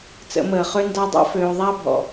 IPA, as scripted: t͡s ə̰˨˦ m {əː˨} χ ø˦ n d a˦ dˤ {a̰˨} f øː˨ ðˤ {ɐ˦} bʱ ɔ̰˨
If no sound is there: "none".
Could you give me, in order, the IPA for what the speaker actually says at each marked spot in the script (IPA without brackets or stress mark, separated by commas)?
əː˨, a̰˦, a˦